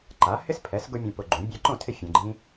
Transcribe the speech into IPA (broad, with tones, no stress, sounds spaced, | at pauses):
ǃ a˩˥ h ɪ˥ s pʰ ɛ˩˥ s ɡ ʊ˥ mʲ ũ˧ p ʊ˧ ɡ͡ǃ ũ˩˥ bʲ ɛ˧ ǃ õ˥˩ tʰ ɪ˥˩ fʲ ẽ˧ ɡ͡ǃ ĩ˥